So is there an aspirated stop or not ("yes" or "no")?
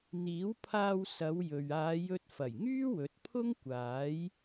yes